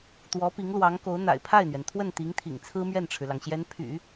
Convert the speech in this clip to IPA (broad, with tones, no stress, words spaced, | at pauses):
t̪wɔ˧˥pi˧˥ŋlwɑ˧˥ŋko˧˥ʊ̯ n̪a̰˨˩ɪ̯pʰa˥˩ɪ̯n̪ɥɛ˩nt̪ʰwə˥˩n t̪i˧˥ŋt̪ʰḭ˨˩ŋt͡sʰɹ̩˥ mɥɛ˥˩nʈ͡ʂʰɻ̩˩lɑ˩ŋɕjɛ˧˥n pʰy̰˨˩˦